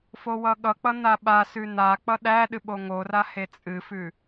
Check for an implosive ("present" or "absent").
present